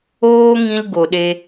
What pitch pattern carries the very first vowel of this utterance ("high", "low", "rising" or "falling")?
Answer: high